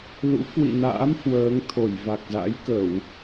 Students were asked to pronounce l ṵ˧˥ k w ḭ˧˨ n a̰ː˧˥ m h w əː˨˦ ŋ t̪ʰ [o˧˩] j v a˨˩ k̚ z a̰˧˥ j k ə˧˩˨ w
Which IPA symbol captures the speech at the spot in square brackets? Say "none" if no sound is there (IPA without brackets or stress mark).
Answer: o˧˩